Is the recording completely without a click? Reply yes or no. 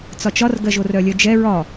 yes